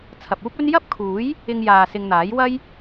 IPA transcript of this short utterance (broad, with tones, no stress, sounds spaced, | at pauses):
t͡sʰ ɐ˨ p̚ uː˥ p̚ ɵ˥ n j ɐ˥ p̚ kʰ uː˨˥ j | ɪ˧ ŋ j aː˨ s ɪ˧ ŋ n̪ aː˨˥ j w ɐ˥ j